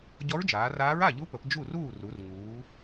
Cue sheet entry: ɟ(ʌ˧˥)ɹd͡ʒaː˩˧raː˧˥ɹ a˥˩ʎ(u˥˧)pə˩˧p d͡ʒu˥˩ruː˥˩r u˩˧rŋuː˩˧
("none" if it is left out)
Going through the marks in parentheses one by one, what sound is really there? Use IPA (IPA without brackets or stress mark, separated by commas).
ɔ˧˥, u˧˥